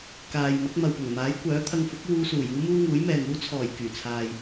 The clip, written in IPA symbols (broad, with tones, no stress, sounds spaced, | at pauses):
k aː˨ j m ɐ˨˥ k̚ m ɐ˨ w p ʊ˨˩ ŋ m aː˨˥ j kʷ œː˨˥ t̪ʰ ɐ˧ ŋ f ʊ˨˥ k̚ w uː˧ s uː˨˩ j uː˥ m uː˥ ŋ uː˨˥ j m ɛː˨ ŋ uː˥ t͡sʰ ɔː˨˩ j k yː˨˩ t͡sʰ aː˨ j